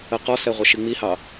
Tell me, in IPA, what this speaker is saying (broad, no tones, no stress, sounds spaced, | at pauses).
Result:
ə q ɔ s ɛ ʁʷ ə ʃ i ŋ͡m i h ɑ